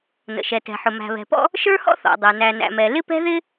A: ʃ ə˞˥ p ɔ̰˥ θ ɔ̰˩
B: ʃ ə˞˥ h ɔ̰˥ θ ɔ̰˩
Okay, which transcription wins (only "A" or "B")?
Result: B